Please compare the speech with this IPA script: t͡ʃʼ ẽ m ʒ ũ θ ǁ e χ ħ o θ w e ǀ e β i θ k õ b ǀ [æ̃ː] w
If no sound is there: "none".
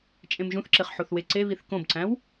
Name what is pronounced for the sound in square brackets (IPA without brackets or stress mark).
æ̃